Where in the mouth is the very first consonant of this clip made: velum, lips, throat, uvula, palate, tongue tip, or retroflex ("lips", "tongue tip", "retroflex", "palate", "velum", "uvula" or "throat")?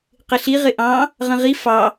uvula